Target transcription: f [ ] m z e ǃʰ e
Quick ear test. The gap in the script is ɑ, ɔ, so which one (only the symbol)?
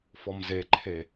ɔ